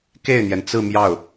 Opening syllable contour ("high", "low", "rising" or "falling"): falling